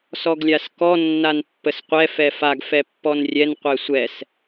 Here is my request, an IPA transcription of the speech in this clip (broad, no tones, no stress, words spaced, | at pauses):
sɔɡlʲaskɔ nːanpːəsqʷɛ fɛfaɡ fɛpːɔnrʲɛn qʷɛsʷɛs